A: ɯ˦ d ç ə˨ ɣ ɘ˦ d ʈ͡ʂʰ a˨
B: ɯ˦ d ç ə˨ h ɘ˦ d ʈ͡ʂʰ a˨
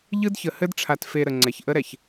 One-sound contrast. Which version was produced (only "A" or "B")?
B